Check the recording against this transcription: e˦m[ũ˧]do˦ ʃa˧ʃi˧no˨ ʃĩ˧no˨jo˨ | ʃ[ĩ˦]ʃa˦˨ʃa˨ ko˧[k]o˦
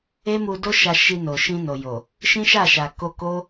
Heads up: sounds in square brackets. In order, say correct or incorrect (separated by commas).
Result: incorrect, correct, correct